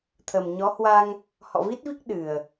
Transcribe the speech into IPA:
t̪ʰə˨˩mɲɔ˨˦ hwa˧ŋ | hɔ̰˧˨vi˦˥t̚vi˦˥k̚ ɗɨ˨˩ə̯

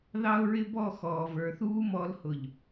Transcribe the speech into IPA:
ðɑ˦ʊ̯ɹɪ˦bɔ˦˨ xɔː˨və˞˨θuː˦ mɔ˨˦lhʊ˨ʎ

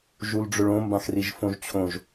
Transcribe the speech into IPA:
ʒulɖ͡ʐɵɭõ mbãxriʒfõʒt͡ɕʰõʒ

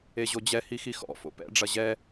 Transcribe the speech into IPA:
eʑod͡ʑɛ hixixɔ̰ fo̰pɛ̰ ɖ͡ʐɐʑɛ

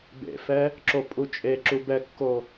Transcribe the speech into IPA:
bḛfɛ | ǁopʼut͡ʃʼeǁu bɛkːo

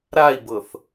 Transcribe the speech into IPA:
ɾai̯bɤθ

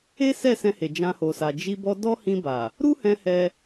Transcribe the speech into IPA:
e˦ sɛ˦˨sɛ̃˧he˨ d͡ʒã˧ho˨sa˨ d͡ʒi˧bɔ˧ dɔ˦hĩ˧ba˨ | ɾu˦hɛ̃˧ hɛ˦

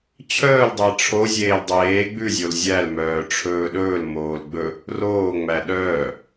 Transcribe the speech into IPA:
t͡ɕʰœːldˤɛ ʈ͡ʂʰozʲeːl dˤeː ɡ͡bʉzʲol zʲælmœː ʈ͡ʂʰɵːɗɵːlmoːl ɡ͡bɵ | roːŋ͡mæ ɗœː

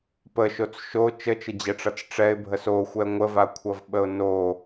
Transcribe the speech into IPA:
pəʃot͡s ʃo t͡ʃət͡ʃəd͡ʑɛʈ͡ʂʌt͡s ʈ͡ʂɛɪ̯bʱəs oxʷɛ ŋʷəvakʷʰʌvɓəʊ̯ no

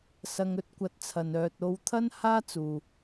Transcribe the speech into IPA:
sɐ˨ŋ ɵ˧t̚kʷɐ˨˥t̚t͡sʰɐ˨n œː˨t̚o˧wt̪ʰɐ˥n haː˥t͡suː˨

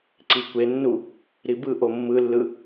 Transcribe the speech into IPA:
ǀikʷenːu | ɾibɯʔo mːɯlːɯ

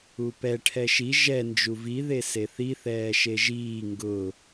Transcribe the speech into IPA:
upɛ ʈʰɛʃi ʒɛ nd͡ʒuvi ðeseθi θɛːʃeʒiː ŋɡʊ

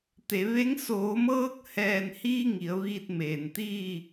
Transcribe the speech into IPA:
t̪e˩˧ʋe˧˥ŋ soː˩˧mɤː˧k̚ hɛː˧˩nhiː˧ ŋi˩˧ə̯ʋiː˧t̚ meː˩nt̪iː˥˨

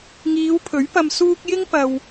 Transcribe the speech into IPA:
ŋiː˨˧wpʰɵ˨˥ɥpɐ˧m suː˥k̚ jɪ˥ŋpɐ˨w

